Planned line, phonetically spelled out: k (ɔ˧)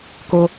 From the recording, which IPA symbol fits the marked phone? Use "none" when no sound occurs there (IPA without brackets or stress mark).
o˧